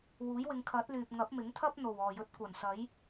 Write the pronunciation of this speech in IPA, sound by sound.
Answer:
wuː˨˥jwɪ˨˧ŋ kʰɐ˨˥t̚lyː˨p̚ ŋɐ˨˥p̚mɪ˨˥ŋt̪ʰɐ˥p̚ n̪o˨˩wɔː˨˩jɵ˨˥t̚ kʷɐ˨˩nsɐ˨˥j

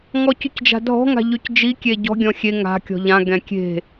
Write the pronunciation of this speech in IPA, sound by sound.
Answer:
ŋɔcycd͡ʒa̤dʱɔ̤ ŋa̤ʎycd͡ʒi kʲeɟɔ̤ ɡʲɔ̃xʲe ŋa̤ kʲɔ̤ʎã ɡɛ̃kʲe̤

